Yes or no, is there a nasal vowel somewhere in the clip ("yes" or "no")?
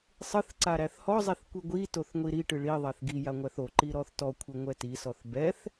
no